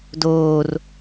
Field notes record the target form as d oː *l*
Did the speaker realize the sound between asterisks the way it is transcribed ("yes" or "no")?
no